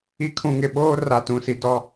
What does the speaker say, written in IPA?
i˨ kʰ ũ˨ ŋ ɪ˨ ɓ oː˦ r a˨ t ũ˨ s i˨ d ɔ˦

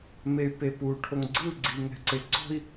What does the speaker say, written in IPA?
m e y̯ p e p u ʈʰ o ŋ ɡ͡ǀ ɯ ɡ͡ǀ i ŋ ɛ̤ ǀ e ǀ ɔ̤ i̯

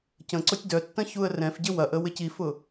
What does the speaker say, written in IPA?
c ə̃ ǀ ʊ tʲ d œ tː ɐ̃ ç u ə̯ r ɛ̃ f ɟ ɪ w ɐ ʔ ə w ɪ c i f ʊ

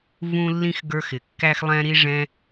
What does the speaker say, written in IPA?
v ũ˦ lː ĩ˦ x ɡ ə˞˧ x ɪ˨ kː æ˦ x lˠ ɛ̃˦ ɾ i˦ ʐ ɛ̃˧

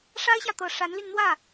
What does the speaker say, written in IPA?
ʂ a˥ ɪ̯ ɕ j ä˨ t̪ ɤ˨˩ ʂ a˧˥ n l y˧ n n̪ w ä˥˩

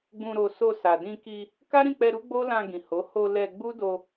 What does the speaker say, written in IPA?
ɡ͡b ũ˧ ɾ o˧ s o˧ s a˨ d ĩ˧ k i˧ | k a˦ ɾ ĩ˦˨ k͡p ɛ˧ ɾ u˦ ɡ͡b o˦ l ã˧ ɡ ĩ˨ h o˨˦ h o˧ l ɛ˧ ɡ͡b u˦ d o˧

